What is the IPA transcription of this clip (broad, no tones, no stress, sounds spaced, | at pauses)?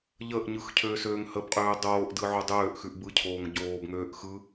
ʎ ə ʔ ɲ ɯ x cʰ øː s øː ŋ h ə b qʼ øː dˤ oː ʔ d ɯ ʕ o dˤ øː ʔ x ʉ ʔ b ɯ cʰ oː ŋ ɟ oː b ŋ øː ʔ x ɯ